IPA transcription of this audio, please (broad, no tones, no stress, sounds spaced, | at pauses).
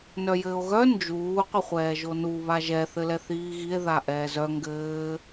n œ j ɘː o̯ ɣ œ n d͡ʒ uː qʷ ɘ χʷ ɛː ʒ o n u β a ʒ ɛ θ ɘ l ɛ θ iː ɣ i e̯ ð a ʔ ɛː z œ ŋ ɡ ɘː